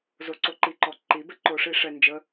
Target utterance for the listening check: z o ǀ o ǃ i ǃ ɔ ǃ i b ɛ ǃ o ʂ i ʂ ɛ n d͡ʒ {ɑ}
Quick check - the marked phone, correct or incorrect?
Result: incorrect